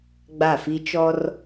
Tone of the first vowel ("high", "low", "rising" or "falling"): falling